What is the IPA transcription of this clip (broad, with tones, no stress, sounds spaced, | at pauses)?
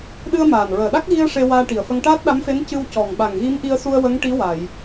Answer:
ɗ ɨ˧ ə̯ m aː˨˩ n ɹ əː˨˩ ɗ a˦˥ k̚ ɣ i˧ ə̯ ʂ e˧ w aː˧ ʈ i˨˩ ə̯ f ə˧ ŋ ʈ aː˦˥ t̚ ɗ a˧˥ m f e˧˥ n c ɨ˧ w c ɔ˨˩ ŋ ɓ a˨˩ ŋ ɣ i˧˥ m ʔ i˧ ə̯ s u˧ ə̯ w ə˧˥ ŋ ʈ i˧˥ w a˨˩˨ j